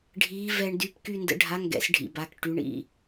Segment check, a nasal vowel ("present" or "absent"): absent